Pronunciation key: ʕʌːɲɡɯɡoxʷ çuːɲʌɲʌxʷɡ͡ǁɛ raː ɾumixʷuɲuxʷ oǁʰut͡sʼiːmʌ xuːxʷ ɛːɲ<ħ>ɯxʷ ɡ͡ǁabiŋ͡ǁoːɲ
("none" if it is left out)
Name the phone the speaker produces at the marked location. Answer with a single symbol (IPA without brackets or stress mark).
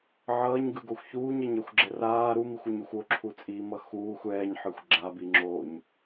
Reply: ħ